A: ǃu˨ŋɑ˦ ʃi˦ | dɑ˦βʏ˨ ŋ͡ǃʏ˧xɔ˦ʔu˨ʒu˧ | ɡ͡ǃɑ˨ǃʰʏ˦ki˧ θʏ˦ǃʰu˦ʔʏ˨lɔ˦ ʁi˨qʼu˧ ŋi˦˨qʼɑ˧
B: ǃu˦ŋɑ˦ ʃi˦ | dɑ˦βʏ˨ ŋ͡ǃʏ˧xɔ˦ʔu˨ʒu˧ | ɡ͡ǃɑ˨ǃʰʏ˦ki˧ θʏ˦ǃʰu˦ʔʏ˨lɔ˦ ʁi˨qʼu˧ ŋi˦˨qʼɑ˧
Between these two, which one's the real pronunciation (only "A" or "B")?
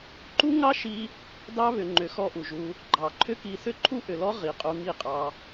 B